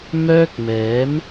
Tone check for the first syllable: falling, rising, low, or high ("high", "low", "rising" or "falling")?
high